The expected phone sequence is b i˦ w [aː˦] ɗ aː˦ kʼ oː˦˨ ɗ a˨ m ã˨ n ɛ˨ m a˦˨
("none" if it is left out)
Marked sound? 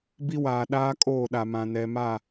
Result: aː˨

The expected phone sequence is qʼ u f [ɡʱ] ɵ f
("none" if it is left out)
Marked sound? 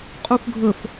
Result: ɡʱ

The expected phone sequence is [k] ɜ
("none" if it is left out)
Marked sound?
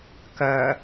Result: k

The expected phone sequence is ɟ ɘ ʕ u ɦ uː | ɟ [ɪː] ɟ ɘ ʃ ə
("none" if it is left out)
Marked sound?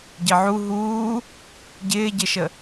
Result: ɪː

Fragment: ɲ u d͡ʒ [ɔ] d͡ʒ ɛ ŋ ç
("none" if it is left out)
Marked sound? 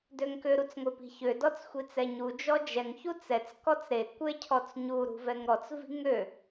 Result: ɔ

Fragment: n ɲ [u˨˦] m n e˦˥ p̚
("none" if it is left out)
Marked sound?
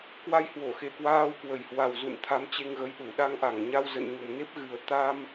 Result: u˧˩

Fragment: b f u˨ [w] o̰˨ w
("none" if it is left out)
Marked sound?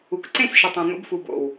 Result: b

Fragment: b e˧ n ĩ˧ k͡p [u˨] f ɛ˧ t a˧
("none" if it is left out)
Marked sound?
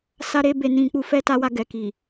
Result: u˧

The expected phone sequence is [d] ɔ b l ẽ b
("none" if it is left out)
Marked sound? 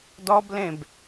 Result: d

